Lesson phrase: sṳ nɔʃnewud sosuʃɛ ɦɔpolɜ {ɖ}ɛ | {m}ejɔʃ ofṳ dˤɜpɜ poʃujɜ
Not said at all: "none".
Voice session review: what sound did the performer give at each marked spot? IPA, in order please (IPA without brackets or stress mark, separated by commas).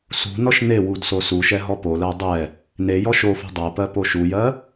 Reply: dˤ, n